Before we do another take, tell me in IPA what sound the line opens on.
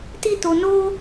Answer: t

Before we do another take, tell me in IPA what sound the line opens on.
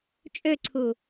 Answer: t͡ʃʼ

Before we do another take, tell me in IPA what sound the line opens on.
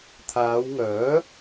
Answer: t̪ʰ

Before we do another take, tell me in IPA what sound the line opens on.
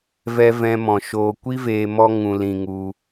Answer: v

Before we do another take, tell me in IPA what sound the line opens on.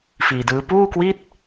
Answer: f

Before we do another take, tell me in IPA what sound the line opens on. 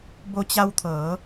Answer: b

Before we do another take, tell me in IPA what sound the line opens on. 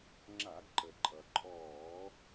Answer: ŋ͡ǁ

